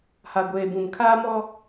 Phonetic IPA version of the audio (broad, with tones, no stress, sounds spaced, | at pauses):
h a˨ ɡʷ eː˨ b ũ˨ m kʰ aː˦ m ɔ˦